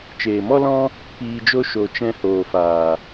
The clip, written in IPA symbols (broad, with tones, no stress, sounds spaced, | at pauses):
t͡ʃ eː˨ m ɔ˦ l ɔ̃˦ | p iː˧ d͡ʒ o˦ ʃ o˨ t͡ʃ ɛ̃˧ h oː˨ f aː˨